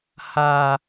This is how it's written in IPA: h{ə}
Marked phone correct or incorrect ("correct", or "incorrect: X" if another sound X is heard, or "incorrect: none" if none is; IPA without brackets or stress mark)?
incorrect: a